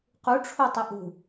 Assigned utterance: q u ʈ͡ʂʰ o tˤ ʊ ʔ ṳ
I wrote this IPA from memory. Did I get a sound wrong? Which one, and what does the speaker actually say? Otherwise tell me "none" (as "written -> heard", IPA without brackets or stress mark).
none